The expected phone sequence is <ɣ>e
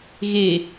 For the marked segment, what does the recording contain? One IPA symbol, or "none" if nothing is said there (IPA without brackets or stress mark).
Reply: ɣ